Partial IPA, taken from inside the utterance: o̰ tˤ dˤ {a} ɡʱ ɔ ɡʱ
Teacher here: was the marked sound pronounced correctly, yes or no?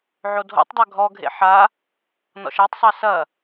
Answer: yes